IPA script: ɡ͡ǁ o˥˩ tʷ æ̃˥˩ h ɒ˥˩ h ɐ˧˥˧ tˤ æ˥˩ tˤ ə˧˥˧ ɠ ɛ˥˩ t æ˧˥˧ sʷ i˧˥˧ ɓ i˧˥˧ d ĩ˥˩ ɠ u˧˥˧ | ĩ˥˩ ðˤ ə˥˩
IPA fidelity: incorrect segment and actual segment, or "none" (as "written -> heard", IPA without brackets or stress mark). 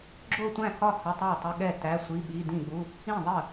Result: none